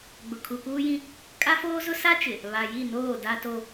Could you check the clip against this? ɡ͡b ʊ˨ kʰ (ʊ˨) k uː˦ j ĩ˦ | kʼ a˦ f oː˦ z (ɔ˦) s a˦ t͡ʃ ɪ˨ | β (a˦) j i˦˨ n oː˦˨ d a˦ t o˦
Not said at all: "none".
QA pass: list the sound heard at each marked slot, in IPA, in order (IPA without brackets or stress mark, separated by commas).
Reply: u˨, ʊ˦, a˨